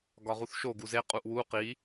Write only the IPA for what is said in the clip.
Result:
ɡɒʁuθʃo ɡuze qʼuʔwu qi

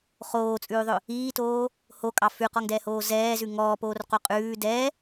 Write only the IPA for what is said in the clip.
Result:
χoːt͡sʼʉːðˤɵ | iːtoː | hokʼɑ fʉqɔŋdɛːhoː zɛːzʉ ŋɔːpoːrqo qʼʉː dɛ

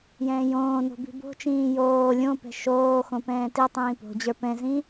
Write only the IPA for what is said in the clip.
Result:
jɛ̃ːjõːno̤ bi̤bo̤t͡ʃĩː joː lʲõpɛ̤ ʃoːxõ pɛ̃ːtitˤĩː po̤d͡ʑə˞ pɛ̃zĩ

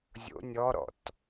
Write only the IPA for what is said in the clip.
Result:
zʲo̰ nʲɔɾɔ̰t

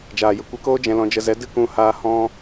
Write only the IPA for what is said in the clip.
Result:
d͡ʒaː˨jə˨kʷe˧koː˦ d͡ʒɛ̃˧lɔ̃˧d͡ʒə˧ zɛ˨˦ dɨ˦ kũ˦haː˦ hɔ̃˧

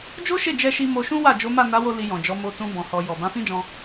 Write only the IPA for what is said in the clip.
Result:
d͡ʒo˦ʃe˦˨d͡ʒɛ˧ʃi˧ mo˧ʃũ˦wa˦˨ d͡ʒo˨˦ma˦˨na˨˦wo˧ li˧jɔ̃˨d͡ʒɔ˨˦ mo˧tũ˧ bɔ̃˨hɔ˨ jɔ˨ bã˨˦fĩ˦d͡ʒɔ̃˧

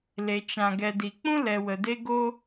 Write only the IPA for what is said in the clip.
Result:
le˨t͡ʃã˨ ɡɛ˨di˨k͡pũ˦lɛ˨ wə˨de˦ɡoː˦

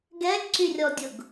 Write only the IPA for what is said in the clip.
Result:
ɡɛɡǀyrʲɔdʲʊɡ

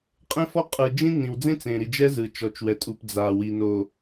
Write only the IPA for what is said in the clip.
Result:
qʼẽ˦fɔ˦ qʼɯ˨d͡ʒĩ˦ nĩ˨wd͡zẽ˦ t͡sẽ˨ɾi˨d͡ʒɛ˦ zɯ˨ t͡ʃɔ˨t͡ʃwɛ˨tʼu˨p d͡za˨ wi˨no˨

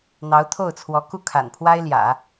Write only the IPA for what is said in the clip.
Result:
n̪ɑ˧˥ʊ̯t̪ʰo˥˩ʊ̯t͡sʰwɔ˧˥ ku˥˩kʰa̰˨˩npʰwa˥ɪ̯ljä̰˨˩˦

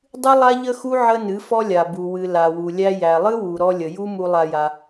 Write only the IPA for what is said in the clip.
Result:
dˤɨ˦lˠa˦ʎə˦xu˦ ʕə˦nɨ˨˦fɔ˦lʲa˨ bu˨wɨ˨ la˨wu˨ lʲæ˧jæ˨lˠɨ˦wu˨ ɾɔ˧ lʲə˨ju˦mu˧lˠa˧ ja˧

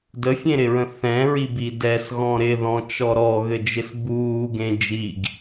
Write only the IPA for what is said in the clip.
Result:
dəfʲẽɾɪɹə̃ θɛ̃ɹibi dɛsɣɔ̃ ɾɪðɔ̃t͡ʃɔ ɾɔɣɘd͡ʒɪs buːɡẽ d͡ʒiɡ

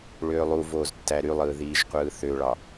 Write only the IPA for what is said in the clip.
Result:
ɭøːlˠu voːztːæɾylˠɯː ðiːʒqʷɯːθøɭɑ

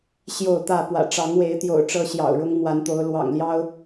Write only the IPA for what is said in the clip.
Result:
ɕjo˥˨ʊ̯t̪ä˥˨ pwä̰˨˩ʈ͡ʂɑ˨˦ŋwe˨˦ɪ̯t̪jo̰˨˩ʊ̯ ʈ͡ʂɤ˦ɕjɑ̰˨˩ʊ̯ ɻʊ˦ŋmwa˨˦nt̪o˨˦ʊ̯ lwɑ̰˨˩ŋljɑ˦ʊ̯

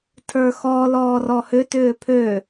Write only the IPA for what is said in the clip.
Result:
tʰə˞xɔ lɔːrɔhʏ tʏːpʰø

